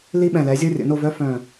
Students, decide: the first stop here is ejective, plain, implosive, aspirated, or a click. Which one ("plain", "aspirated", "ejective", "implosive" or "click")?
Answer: implosive